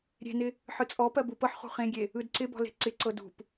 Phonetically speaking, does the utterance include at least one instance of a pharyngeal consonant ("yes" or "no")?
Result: yes